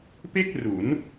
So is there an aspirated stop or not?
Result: no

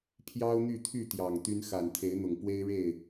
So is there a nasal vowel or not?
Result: no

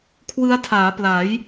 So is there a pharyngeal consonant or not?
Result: no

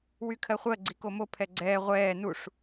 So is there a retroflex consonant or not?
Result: yes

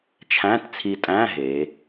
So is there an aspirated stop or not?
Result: yes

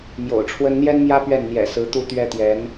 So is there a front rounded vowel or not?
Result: no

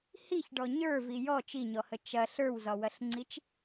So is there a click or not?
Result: yes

